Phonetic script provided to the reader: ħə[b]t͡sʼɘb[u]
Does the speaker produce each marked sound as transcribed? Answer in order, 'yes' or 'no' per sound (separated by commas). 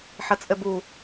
no, yes